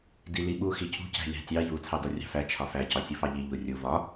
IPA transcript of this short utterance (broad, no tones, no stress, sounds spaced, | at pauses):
d i l i ɓ u x i cʰ ṳ c æ̤ lʲ ɑ̤ tʲ ɑ j u t͡sʰ ɑ d ɔ rʲ ɑ̤ f æ t͡ʃʰ ɒ f æ c ɒ sʲ u f ɑ ʎ i ʎ u rʲ u v ɒ